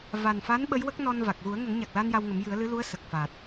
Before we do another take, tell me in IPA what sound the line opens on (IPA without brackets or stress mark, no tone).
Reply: v